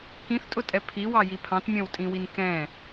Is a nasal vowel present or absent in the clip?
present